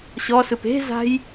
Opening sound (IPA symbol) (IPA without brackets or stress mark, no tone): ɕ